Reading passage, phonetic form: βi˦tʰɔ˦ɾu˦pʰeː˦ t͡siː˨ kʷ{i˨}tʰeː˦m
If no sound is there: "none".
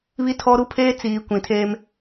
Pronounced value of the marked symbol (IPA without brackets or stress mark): ĩ˨